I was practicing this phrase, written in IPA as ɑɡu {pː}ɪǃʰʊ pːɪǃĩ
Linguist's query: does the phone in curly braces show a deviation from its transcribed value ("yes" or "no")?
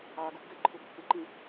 yes